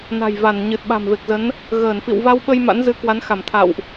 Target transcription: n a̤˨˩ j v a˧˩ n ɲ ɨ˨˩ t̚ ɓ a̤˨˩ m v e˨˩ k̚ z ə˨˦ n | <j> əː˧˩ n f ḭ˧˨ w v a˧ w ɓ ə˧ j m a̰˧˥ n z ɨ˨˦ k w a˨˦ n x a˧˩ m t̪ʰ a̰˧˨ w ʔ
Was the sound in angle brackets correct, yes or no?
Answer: no